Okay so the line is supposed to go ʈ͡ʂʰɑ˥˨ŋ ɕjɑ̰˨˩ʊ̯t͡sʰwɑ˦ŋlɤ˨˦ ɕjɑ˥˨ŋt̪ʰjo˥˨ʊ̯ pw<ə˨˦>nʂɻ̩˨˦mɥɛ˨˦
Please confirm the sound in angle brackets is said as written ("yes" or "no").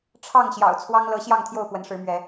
yes